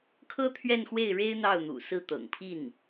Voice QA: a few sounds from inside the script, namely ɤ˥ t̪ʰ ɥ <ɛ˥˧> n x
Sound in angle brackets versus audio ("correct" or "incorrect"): correct